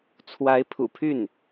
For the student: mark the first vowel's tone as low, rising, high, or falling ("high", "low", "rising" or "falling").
rising